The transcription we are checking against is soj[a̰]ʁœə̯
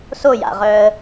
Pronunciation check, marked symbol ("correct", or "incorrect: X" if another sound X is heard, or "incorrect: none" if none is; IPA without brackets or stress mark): correct